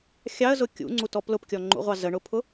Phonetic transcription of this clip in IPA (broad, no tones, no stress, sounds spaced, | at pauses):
xʲ ɑ ə̯ z ʊ kʲ ṵ ŋ͡ǀ u t ɔ p l ʊ p kʲ ɔ ŋ͡ǃ ṵ ʁʷ ɑ z ə ɳ ʊ pʰ ʊ